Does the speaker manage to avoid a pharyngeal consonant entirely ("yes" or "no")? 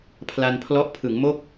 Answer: yes